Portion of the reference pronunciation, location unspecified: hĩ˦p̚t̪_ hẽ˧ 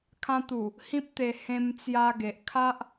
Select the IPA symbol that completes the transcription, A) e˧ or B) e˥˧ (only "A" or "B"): A